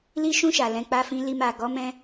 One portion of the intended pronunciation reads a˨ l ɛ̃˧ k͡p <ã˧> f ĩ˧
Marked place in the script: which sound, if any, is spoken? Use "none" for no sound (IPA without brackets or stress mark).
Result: a˧